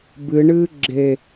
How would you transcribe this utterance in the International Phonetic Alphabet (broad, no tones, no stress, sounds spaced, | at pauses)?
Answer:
b ɨ ɳ ɨː ɡ͡ǁ e